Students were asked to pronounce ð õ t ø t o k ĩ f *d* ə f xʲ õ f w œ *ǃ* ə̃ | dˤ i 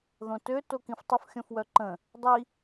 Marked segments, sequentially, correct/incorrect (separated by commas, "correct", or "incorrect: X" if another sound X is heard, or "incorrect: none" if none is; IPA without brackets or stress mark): incorrect: tˤ, correct